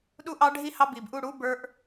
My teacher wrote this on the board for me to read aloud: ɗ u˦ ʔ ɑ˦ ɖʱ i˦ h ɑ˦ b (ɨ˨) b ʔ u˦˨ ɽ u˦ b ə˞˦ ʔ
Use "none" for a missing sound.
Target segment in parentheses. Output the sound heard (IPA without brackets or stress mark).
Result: i˨